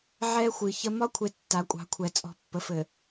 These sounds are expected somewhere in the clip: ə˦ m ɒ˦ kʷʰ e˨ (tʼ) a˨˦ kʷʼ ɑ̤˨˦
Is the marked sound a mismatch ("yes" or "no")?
yes